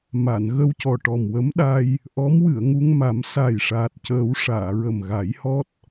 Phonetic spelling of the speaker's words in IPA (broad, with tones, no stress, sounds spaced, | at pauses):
m a˨˩˨ n ɣ ə˧ w c ɔ˨˩ ʈ ɔ˨˩ m w ə˧˥ m ɗ a˧ j | ʔ ɔ˧˥ m w ɨ˨˩˨ ə̯ ŋ u˧ ŋ m a˨˩˦ m s a˨˩ j ʂ aː˨˩ t̚ c əː˨˩˦ w ʂ aː˨˩˨ ɹ ə˨˩ m ɣ a˨˩˦ j h ɔ˦˥ t̚